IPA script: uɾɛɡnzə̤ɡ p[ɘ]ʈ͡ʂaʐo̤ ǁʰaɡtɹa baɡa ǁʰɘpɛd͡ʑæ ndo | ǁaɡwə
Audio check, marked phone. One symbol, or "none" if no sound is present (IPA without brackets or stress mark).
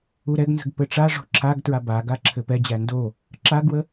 ɘ